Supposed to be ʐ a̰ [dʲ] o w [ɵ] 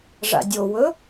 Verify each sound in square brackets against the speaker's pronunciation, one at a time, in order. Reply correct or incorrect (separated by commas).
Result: correct, correct